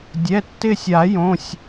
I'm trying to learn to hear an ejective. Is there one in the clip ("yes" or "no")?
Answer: no